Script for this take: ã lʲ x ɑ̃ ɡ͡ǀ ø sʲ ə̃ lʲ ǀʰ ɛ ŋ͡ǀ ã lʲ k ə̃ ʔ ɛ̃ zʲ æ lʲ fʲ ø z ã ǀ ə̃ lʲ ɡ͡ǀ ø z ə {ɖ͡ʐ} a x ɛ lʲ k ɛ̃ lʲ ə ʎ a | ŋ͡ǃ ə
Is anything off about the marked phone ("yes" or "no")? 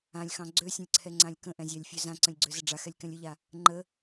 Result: no